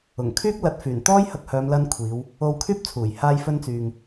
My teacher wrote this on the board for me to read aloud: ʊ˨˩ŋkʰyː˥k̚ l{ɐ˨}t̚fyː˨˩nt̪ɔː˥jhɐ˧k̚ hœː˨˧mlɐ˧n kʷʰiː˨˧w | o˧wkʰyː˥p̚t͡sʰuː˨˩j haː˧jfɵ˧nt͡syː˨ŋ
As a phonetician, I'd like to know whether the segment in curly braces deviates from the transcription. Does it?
yes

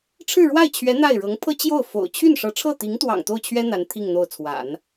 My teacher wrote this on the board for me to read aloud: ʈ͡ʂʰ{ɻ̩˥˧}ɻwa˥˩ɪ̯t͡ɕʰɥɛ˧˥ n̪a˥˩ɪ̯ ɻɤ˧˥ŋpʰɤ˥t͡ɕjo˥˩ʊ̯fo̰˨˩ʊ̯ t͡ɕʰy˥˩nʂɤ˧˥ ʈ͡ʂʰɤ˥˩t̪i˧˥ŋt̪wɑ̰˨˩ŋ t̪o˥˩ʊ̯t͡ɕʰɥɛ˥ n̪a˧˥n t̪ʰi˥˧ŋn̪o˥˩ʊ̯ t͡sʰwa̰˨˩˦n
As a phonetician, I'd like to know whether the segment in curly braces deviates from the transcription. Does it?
no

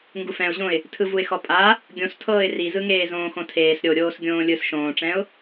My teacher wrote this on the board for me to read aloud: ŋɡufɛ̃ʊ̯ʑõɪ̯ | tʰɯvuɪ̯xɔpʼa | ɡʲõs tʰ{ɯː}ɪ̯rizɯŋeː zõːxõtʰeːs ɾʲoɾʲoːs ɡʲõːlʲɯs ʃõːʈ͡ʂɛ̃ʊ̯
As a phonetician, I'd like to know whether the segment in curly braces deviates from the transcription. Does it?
yes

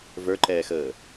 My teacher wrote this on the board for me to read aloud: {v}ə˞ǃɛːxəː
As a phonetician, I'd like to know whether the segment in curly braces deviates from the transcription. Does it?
no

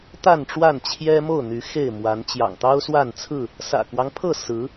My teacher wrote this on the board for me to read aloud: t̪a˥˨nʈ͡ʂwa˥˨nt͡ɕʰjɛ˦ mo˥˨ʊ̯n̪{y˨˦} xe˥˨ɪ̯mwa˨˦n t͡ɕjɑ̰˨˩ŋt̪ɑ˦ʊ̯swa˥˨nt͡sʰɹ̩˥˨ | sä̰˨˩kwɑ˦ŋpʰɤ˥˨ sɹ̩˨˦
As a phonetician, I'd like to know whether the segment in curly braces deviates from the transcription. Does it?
no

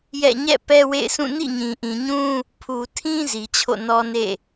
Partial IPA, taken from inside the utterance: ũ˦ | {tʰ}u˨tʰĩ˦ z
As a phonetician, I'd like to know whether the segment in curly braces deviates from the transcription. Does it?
yes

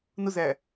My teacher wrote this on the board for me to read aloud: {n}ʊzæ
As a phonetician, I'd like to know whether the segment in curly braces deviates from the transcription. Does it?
no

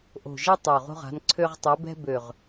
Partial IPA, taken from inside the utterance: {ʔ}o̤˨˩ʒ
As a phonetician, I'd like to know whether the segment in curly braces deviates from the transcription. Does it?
no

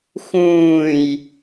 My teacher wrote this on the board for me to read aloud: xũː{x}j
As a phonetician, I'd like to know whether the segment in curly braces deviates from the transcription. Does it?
yes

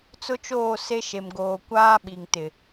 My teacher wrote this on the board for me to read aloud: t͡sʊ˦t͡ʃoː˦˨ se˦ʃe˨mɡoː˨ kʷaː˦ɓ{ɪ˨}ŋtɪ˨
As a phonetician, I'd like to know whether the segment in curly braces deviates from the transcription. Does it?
yes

